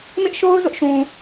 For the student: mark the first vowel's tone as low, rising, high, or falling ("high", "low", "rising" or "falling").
high